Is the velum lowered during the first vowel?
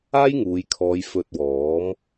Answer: no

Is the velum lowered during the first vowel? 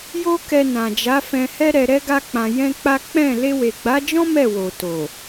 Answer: no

